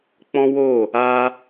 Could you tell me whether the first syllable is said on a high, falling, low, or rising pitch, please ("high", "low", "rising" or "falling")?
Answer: high